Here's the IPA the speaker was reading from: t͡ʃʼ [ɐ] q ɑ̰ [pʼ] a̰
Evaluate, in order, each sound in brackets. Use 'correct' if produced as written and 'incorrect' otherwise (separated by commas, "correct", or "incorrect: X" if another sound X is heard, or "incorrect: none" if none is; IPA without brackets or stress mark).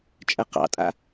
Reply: correct, incorrect: tʼ